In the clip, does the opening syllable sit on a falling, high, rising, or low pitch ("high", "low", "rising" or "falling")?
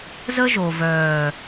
high